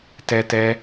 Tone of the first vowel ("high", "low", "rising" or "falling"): high